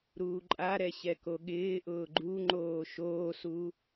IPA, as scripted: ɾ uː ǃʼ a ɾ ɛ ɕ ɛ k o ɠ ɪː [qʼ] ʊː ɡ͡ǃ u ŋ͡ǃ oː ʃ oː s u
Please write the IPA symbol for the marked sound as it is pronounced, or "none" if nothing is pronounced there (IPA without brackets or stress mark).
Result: ʔ